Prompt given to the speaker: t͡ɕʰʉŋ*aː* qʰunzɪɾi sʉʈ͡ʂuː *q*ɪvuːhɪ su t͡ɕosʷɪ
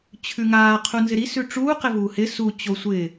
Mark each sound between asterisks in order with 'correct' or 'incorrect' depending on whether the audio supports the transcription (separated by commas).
correct, correct